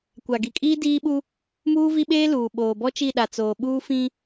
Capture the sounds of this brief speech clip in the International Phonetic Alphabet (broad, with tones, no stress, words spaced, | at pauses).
kʷa˨ɡi˨kʼiː˦ diː˦ɓu˦ | muː˦vi˦ɓeː˦luː˨ ɓoː˨bɔ˦t͡ʃi˦˨ɗa˨ t͡soː˨ɓuː˦ fĩ˦